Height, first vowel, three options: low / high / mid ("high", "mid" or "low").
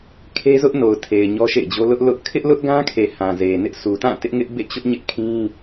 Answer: mid